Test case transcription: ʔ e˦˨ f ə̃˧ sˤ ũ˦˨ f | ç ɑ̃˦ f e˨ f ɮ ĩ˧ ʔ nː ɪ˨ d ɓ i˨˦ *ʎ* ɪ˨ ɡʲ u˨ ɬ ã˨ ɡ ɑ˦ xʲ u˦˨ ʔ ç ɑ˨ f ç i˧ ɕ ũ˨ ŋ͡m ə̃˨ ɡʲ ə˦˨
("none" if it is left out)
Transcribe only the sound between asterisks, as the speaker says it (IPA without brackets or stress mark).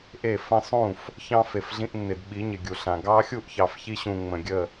ɲ